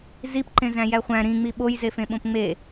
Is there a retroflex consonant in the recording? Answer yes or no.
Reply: no